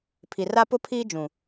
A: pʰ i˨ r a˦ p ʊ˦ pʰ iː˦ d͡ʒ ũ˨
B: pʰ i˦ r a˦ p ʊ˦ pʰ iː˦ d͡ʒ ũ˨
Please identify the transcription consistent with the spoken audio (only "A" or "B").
A